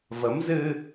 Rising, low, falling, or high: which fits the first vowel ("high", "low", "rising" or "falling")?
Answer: rising